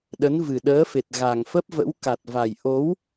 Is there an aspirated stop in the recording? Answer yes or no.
no